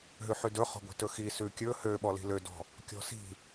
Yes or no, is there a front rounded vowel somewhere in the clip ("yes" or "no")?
yes